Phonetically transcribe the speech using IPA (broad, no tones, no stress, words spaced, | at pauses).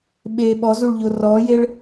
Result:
ɓeːɓɔzuɭ ʎorɔːjeɭ